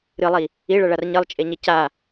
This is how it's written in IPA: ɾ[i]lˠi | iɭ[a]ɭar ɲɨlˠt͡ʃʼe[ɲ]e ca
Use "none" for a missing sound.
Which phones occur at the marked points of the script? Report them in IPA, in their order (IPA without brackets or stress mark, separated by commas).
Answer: ɨ, ɐ, ɲ